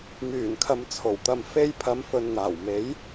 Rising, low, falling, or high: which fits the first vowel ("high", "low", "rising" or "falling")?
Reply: low